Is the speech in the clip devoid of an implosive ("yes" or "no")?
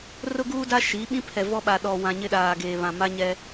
no